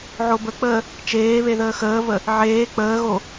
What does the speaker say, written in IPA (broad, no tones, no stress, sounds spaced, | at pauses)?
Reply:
ʕ o b ə k͡p əː | t͡ʃ eː β e ð əː x əː v ə | ʕ eː k͡p əː ɣ o